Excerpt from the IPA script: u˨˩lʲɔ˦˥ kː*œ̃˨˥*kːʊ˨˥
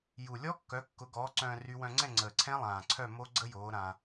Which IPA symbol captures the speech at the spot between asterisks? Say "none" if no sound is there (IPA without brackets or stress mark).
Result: œ˨˥